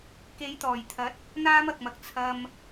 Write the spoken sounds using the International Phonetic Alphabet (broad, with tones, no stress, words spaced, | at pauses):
ke˨˥jt̪ɔː˨˩jt̪ʰɐ˨˥t̚ | n̪aː˥mɐ˨k̚mɐ˨k̚ t͡sʰɐ˧m